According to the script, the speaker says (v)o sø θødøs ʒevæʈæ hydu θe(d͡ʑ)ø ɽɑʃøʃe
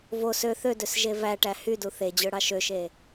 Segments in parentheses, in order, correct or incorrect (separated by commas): correct, correct